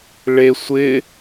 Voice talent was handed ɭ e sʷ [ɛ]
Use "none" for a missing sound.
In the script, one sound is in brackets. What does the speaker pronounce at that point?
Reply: ɪ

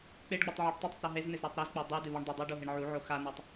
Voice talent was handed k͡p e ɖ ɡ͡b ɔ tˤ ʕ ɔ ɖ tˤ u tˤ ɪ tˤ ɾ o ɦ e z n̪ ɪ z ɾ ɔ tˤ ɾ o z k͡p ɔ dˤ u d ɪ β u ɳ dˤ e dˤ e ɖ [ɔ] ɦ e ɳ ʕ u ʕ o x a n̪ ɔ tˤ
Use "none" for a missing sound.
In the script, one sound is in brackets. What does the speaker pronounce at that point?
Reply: o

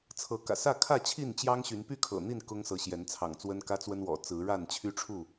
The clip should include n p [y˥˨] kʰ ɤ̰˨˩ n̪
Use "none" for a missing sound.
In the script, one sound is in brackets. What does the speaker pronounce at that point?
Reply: y˥˨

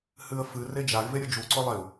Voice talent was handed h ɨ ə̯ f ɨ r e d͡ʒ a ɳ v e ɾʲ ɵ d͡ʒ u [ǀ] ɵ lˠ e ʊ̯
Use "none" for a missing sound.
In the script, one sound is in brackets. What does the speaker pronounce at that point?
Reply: ǀ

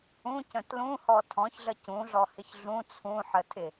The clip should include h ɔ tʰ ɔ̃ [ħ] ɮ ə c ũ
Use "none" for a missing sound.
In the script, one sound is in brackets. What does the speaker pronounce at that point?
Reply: ç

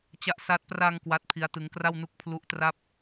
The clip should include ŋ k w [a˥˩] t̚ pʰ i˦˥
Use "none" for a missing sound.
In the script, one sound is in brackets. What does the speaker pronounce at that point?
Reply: a˦˥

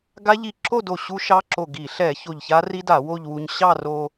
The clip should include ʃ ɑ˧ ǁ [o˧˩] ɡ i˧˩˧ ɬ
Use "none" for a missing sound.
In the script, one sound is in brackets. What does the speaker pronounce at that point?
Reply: o˧˩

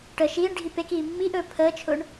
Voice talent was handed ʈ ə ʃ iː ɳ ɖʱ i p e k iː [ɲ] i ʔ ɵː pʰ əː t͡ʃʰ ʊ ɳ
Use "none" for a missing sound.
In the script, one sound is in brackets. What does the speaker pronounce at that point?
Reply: mː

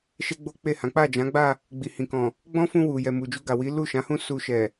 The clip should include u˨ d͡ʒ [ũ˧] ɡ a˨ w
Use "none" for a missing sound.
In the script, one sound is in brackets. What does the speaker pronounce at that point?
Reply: u˧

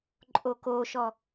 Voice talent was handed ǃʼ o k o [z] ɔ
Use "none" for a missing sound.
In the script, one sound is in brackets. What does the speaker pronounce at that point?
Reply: ʃ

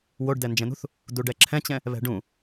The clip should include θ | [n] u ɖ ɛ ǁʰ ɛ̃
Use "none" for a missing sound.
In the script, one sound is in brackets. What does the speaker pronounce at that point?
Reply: d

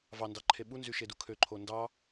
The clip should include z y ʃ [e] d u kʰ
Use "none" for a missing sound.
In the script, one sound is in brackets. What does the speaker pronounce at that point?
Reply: e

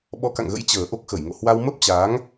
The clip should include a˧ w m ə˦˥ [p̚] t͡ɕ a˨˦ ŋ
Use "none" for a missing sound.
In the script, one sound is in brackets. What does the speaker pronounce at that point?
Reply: p̚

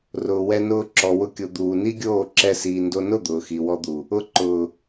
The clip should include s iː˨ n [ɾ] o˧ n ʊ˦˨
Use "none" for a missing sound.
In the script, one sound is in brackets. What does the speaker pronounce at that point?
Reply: d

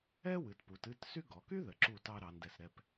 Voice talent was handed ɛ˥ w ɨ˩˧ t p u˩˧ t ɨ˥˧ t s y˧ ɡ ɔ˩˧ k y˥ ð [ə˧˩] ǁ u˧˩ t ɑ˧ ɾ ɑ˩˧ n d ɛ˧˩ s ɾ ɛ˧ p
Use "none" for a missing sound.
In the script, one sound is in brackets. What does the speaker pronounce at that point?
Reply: ə˩˧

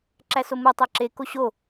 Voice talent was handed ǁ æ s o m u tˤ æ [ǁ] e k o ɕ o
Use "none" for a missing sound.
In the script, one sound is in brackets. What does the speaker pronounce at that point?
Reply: ǁ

